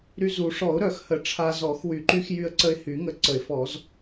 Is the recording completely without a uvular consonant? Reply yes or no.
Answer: yes